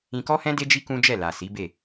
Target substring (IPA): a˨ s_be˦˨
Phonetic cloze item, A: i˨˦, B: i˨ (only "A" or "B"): A